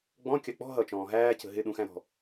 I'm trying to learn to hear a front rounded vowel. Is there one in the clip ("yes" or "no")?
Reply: no